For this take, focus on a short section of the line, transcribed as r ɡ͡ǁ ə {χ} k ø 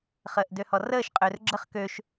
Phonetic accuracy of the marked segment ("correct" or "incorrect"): correct